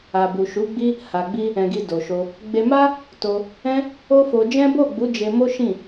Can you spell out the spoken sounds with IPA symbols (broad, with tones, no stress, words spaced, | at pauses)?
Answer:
a˨bu˨ʃu˨˦ɡ͡bi˦ | ha˨ɡ͡bi˧ | ɛ̃˨ɡi˨ do˨ʃo˧ | ɡ͡be˧ma˦ | to˧ | ɛ̃˦ | o˦fo˧ d͡ʒɛ̃˦bo˦˨ ɡ͡bu˨˦ d͡ʒe˧mo˦ ʃĩ˦˨